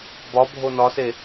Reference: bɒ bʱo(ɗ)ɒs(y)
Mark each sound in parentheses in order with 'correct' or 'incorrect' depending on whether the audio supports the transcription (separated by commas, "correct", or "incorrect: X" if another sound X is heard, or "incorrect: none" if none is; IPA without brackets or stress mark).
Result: incorrect: n, incorrect: e